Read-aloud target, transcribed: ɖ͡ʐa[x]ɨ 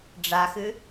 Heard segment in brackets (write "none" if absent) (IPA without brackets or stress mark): x